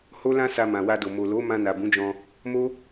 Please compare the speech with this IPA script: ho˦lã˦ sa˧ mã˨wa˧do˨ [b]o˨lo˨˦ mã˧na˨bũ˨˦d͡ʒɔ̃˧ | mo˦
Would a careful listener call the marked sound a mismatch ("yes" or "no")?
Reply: yes